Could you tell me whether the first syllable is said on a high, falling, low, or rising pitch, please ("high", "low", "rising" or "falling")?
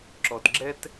low